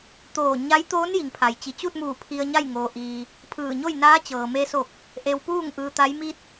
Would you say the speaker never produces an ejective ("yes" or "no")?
yes